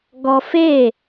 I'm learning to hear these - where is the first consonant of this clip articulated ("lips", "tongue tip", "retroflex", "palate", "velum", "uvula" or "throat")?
velum